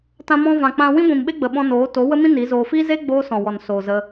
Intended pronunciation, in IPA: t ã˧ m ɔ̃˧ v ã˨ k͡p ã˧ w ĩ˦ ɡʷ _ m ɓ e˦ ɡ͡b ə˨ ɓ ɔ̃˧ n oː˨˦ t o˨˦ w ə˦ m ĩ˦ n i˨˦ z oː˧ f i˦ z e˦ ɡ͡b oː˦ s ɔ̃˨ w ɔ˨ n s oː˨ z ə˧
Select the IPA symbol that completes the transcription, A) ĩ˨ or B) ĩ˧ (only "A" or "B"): A